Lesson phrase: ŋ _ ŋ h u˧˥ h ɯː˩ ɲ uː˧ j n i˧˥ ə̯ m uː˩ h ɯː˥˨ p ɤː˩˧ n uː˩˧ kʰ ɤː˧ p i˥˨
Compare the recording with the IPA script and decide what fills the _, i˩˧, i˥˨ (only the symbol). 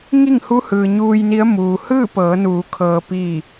i˥˨